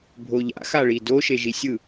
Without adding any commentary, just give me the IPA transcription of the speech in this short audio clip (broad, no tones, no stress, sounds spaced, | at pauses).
bʱ o ʎ a̰ x a ɭ i d o ʃ e ʒ i sʲ ɯ